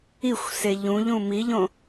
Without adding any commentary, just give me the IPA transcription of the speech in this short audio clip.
i xʷ s e ʎ ũ ʎ ũ m i ʎ õ

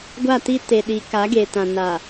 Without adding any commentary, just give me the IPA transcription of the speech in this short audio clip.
ɡʷ a˦˨ t i˦ t e˨ ɗ i˨˦ k a˨˦ ɡ e˨ t ã˨ n a˨

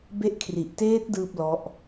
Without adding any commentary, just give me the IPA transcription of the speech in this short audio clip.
b e˦˥ ʔ kʰ r i˨˩ ʔ t eː˦˥ t̚ d ɯː˥˩ p̚ l ɔ˦˥ ʔ

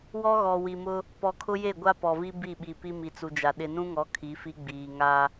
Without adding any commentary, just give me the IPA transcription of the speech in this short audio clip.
w ɔ˦ ɣ ɔ˨ w i˨ m ʊ˦ | p ɔ˨ kʰ ʊ˦ j e˦˨ ɡʷ a˦ p ɔ˨ v i˦ b i˦˨ ɓ i˨ p i˦ m i˨ t͡s u˨ d͡ʒ a˨ ɗ ɪ˨ n ũ˦ ŋ ɔ˨˦ kʰ i˨˦ f i˦ ɡ͡b iː˨ ŋ a˦

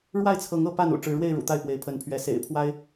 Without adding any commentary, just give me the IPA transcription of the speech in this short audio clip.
ɻ w a˥˨ ɪ̯ t͡sʰ ɤ˨˦ ŋ ɤ˥˨ p a˥˨ n ṵ˨˩ ʈ͡ʂ ɻ̩˨˦ ɻ w e˥˨ ɪ̯ ɻ ṵ˨˩ t̪ a˥˨ ɪ̯ p w e˨˦ ɪ̯ pʰ ə˨˦ n pʰ ɥ ɛ˨˦ s ḛ˨˩ ɪ̯ pʰ w a˦ ɪ̯

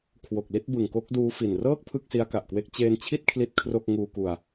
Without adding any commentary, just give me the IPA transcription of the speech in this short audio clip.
kʰ w o˨˩ k̚ l i˥˩ t̚ b ɯ˨˩ ŋ k o˦˥ k̚ d uː˦˥ f i˨˩ n r ɤː˥˩ k̚ pʰ ɯ˥˩ k̚ s i˦˥ a̯ k a˨˩ ʔ k w e˦˥ k̚ t͡ɕ eː˧ n t͡ɕʰ i˥˩ t̚ kʰ l i˥˩ t̚ kʰ r o˥˩ k̚ ŋ uː˧ k u˧ a̯

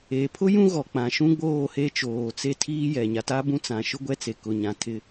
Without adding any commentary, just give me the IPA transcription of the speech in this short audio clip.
eː˨ pʰ ʊ˦ j ũ˦ ɣ ɔ˨ k͡p ã˨ ʃ ũ˦ ɡ͡b oː˦˨ h e˦ t͡ʃ oː˨ t͡s e˦ tʰ iː˦ j ɛ˨ ɲ a˨ t a˦ b ũ˦ t͡s ã˨ ʃ ʊ˦ ɡʷ ɛ˦ t͡s e˨ k ʊ˨ ɲ ã˨ tʰ ɪ˦

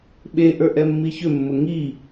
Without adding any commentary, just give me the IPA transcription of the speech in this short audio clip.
ɓ e ʔ ə˞ ʔ ɛ mː i ç ʏ mː ʊ ŋ i

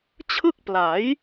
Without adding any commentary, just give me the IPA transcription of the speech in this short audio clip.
t͡ɕʰ ɯ˥˩ k̚ p l a˩˦ j

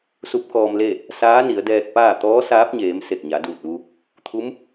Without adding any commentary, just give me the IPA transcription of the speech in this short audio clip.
s u˧˥ p̚ k ɔː˧ m l e˥˨ | s aː˧˥ n i˩˧ ə̯ d ɛː˧ k̚ p aː˥˨ t̪ ɔː˧˥ s aː˧˥ p̚ ɲ eː˩˧ m s e˧˩ k̚ ɲ a˩˧ d uː˧˩ t̚ ʋ u˧ | t̪ʰ u˧˥ m

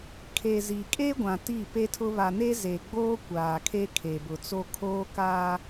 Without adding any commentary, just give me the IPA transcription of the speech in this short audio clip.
kʰ e˨ z i˨ kʼ e˦ ɡʷ ã˨ t i˦˨ p e˦ tʰ ʊ˦ β a˨ n e˦ z e˨ ɡ͡b oː˦ kʷ aː˨ kʰ e˦ kʰ e˨ b ʊ˨ t͡s o˦ kʰ oː˦ k aː˦

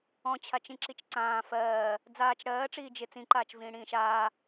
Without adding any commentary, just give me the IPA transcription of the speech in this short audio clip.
ɔ̃ t͡ɕʰ a t͡ʃ ĩ ǁ i t͡ʃ ǀ ãː f ɜː | d͡z aː t͡ʃ ɽ ɜː ʈ͡ʂ iː d͡ʒ ɪ t͡s ĩ ǃ aː t͡ʃ v ĩː ɽ ĩː ʃ aː

